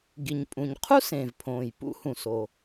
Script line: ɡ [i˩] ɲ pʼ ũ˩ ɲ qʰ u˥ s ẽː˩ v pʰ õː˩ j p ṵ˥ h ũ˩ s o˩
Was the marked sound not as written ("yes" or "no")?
no